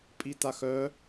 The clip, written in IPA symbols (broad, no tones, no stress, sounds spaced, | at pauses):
pʼ i t a x œ